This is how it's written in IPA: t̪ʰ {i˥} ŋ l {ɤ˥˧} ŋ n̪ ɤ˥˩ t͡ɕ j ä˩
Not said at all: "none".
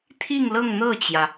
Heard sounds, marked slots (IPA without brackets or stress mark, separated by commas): i˥˧, ɤ˥˧